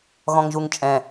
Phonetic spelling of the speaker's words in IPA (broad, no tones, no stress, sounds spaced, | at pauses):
ɣ ɔ̃ ŋ ʒ u ŋ t͡ʃʼ ɛ̃